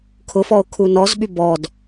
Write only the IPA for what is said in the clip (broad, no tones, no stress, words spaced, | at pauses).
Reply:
kʰʊfɔo̯ kʰunɔzɓy bɔd